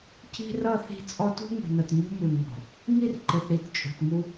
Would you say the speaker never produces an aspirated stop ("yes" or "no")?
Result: yes